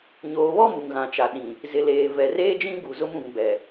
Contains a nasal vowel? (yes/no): yes